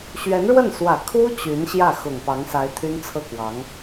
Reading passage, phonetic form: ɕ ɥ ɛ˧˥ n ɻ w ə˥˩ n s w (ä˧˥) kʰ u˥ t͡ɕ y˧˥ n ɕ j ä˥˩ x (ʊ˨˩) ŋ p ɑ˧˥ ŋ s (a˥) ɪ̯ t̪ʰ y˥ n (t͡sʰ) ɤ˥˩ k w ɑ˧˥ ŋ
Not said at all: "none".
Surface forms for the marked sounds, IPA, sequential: ä˨˩, ʊ˨˩, a˧˥, t͡sʰ

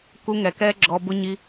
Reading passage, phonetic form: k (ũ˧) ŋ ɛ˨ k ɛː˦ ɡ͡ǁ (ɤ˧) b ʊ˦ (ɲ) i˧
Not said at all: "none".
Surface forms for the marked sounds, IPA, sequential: u˧, ɔ˧, ɲ

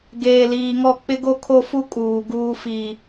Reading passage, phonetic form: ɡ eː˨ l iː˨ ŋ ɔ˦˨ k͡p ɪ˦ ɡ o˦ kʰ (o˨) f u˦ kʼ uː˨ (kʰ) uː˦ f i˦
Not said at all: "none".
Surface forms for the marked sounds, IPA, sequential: o˦, ɡ

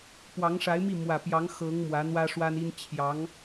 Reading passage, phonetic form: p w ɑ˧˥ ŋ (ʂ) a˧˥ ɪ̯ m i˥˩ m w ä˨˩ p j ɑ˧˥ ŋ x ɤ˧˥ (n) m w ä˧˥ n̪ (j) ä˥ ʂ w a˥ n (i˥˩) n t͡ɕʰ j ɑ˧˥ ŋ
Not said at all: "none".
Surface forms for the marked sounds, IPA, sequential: ʂ, ŋ, w, i˥

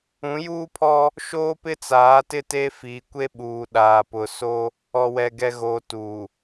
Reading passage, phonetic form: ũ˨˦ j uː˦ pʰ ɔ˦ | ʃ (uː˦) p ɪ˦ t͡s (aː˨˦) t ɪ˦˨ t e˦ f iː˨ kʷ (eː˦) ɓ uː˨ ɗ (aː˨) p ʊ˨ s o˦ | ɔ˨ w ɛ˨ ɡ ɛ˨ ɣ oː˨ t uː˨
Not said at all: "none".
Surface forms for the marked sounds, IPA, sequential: oː˦, aː˨˦, e˦, aː˨

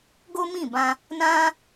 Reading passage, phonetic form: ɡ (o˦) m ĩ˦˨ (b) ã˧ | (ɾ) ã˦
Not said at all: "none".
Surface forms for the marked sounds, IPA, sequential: o˦, b, n

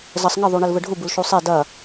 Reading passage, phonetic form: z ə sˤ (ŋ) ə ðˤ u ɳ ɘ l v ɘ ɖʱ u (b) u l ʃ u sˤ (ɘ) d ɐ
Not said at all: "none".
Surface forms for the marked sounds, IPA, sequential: ŋ, b, e

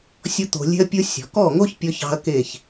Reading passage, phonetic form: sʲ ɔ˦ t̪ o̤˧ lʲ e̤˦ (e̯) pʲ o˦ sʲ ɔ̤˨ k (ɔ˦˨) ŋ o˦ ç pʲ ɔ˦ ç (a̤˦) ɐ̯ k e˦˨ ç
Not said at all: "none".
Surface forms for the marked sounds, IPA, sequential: ɐ̯, ɔ˦˨, ɑ̤˦

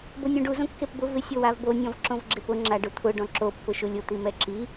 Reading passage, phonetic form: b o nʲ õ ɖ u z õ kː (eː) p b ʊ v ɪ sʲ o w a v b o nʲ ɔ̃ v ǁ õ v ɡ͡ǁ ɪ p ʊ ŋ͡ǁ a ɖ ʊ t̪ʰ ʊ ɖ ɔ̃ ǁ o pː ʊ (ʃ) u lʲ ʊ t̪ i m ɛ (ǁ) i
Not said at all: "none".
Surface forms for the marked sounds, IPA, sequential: e, ʃ, ǁ

